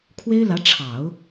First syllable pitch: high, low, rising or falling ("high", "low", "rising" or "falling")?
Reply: high